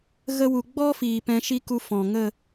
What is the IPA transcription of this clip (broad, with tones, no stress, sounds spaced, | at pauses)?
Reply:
ɣ ə˧ w u˨ ɡ͡b ɔ˦ f iː˨ p ɛ̃˧ ʃ i˦ k u˧ f ɔ̃˨ ŋ ə˦˨